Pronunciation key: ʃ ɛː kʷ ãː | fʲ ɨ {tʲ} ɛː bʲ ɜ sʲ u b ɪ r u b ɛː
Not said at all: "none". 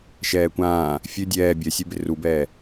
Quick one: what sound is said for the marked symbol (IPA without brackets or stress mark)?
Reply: dʲ